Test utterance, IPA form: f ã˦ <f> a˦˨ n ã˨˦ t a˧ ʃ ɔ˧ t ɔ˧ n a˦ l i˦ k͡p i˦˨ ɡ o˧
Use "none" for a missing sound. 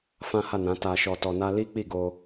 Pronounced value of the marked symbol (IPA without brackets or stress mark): h